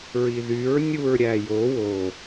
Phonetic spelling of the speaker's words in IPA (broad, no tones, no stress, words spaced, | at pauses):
ɹiðyɹ nʲuɹɾʲæjo wo